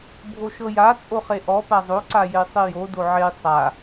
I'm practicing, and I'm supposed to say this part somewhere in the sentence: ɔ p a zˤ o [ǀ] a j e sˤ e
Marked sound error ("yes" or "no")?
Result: no